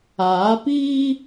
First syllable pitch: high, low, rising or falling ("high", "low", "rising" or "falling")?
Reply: rising